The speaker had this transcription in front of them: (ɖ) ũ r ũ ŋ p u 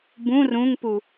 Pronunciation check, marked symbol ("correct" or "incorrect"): incorrect